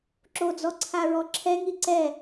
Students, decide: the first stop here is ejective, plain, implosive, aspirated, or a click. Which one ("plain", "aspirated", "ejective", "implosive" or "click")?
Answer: click